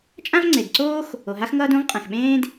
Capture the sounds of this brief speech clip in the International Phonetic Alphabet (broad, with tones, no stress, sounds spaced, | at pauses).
t͡ʃʼ ã˥ v ŋ͡ǀ e˩ d ǀ oː˥ x | o˩ ɦ a˥ x ŋ ʌː˥ d õ˥ v qʼ ɛ̃˩ x ɓ ẽː˥ d